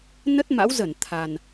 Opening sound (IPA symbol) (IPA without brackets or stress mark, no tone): n